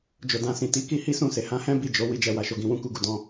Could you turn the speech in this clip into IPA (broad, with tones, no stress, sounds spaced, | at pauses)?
d͡ʒ o˨ d ã˧ s ĩ˨ t i˨˦ k i˦ h i˦ s ũ˦˨ s e˨ h ã˨˦ h ɛ̃˦ b i˦˨ d͡ʒ o˨˦ w i˦ d͡ʒ ɛ˧ w a˨ ʃ o˨˦ ɡ ĩ˧ w ũ˦ k u˧ ɡ u˨ d ɔ̃˨˦